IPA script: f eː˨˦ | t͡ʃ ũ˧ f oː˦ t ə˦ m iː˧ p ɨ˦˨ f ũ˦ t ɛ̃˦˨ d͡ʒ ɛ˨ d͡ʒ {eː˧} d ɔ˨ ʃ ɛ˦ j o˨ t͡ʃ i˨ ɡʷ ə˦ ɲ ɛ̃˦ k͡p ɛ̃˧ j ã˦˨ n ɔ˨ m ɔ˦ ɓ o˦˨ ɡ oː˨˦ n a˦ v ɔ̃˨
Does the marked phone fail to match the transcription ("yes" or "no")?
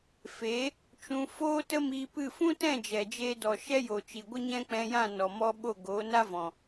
no